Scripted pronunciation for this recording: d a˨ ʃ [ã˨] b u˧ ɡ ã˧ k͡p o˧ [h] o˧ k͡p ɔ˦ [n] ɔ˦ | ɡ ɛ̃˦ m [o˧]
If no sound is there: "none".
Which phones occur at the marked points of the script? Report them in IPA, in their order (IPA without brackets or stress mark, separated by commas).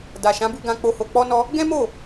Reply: ã˨˦, h, n, o˦˨